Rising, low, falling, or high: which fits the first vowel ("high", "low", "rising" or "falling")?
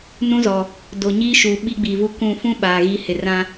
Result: high